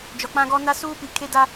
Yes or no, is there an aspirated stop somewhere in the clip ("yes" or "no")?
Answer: yes